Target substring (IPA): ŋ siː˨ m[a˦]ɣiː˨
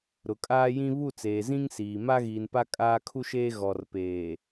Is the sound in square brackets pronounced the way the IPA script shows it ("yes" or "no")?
yes